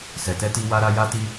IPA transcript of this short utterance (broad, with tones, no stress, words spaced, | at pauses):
sɛ˨tɛ˧ti˧ wa˧ɾa˧ ja˧ti˧